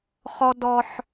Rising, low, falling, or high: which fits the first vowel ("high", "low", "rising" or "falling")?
high